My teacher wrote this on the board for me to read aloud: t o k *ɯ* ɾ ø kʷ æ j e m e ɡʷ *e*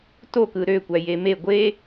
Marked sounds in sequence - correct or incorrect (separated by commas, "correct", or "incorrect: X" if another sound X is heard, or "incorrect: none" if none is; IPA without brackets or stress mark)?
correct, correct